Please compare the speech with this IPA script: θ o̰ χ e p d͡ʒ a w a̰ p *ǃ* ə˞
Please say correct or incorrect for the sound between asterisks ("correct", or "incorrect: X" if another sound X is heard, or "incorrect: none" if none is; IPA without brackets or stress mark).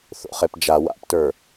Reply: incorrect: t